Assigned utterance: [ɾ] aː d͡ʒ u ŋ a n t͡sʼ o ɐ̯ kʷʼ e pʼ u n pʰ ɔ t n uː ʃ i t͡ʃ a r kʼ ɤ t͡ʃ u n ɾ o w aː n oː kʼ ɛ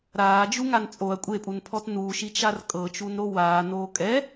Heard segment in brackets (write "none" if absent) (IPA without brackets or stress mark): ɾ